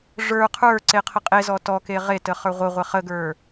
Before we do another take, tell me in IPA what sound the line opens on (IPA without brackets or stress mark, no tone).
ʐ